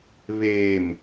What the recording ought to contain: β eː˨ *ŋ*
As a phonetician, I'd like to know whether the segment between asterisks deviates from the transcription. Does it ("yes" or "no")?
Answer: yes